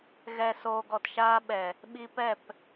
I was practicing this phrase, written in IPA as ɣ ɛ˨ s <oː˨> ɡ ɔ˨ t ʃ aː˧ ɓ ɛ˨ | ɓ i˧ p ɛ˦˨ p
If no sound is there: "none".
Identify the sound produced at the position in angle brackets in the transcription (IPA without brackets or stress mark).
oː˨